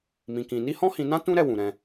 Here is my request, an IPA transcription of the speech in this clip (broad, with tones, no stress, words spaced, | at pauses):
mĩ˧kĩ˧ ni˦hɔ̃˦hĩ˧nã˦ tũ˦ ɾɛ˦˨wũ˨ ɾɛ̃˧